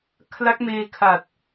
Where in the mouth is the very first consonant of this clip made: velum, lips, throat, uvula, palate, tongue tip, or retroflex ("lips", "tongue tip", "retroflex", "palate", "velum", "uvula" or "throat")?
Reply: velum